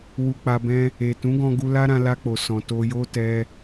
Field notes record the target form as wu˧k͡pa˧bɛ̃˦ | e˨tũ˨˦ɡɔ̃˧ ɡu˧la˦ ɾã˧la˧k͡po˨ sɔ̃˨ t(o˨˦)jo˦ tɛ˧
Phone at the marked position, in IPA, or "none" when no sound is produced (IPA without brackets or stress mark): o˧